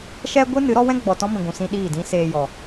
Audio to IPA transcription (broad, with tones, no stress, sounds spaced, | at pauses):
ʃ ɛ˦ ɡʷ ɨ˦ n ɨ˨˦ ɾ ɔ˦ w ɛ̃˦ ɡ͡b ɔ˨ t ɔ̃˦ m ĩ˨ ɡʷ ũ˨ s ĩ˧ ɗ iː˦˨ d ĩ˦ s eː˧ j ɔ˨